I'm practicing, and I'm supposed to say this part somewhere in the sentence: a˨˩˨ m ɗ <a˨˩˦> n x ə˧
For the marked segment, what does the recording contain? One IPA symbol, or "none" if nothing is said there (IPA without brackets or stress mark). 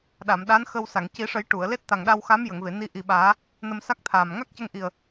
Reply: a˧˥